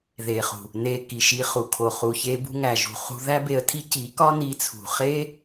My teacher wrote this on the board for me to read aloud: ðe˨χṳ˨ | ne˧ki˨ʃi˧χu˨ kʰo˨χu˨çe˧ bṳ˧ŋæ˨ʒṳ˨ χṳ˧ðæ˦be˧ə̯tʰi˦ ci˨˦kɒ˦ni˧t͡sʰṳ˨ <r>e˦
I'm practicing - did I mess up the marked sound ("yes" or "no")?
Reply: yes